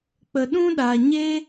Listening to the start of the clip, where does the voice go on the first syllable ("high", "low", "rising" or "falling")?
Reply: low